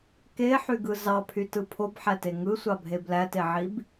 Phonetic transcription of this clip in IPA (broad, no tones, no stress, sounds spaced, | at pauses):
k e ħ y ɡ ɯ z ɑ pʰ y t ɯ pʰ o b ħ æ t e ŋ ɯ sʷ ɑ bʱ e b l æ t e ʕ i b